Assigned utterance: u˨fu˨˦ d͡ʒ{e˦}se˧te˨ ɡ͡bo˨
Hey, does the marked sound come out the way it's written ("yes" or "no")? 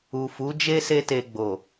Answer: yes